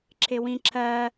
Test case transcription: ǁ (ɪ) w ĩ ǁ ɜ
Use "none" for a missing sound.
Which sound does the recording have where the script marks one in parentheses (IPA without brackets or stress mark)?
ɪ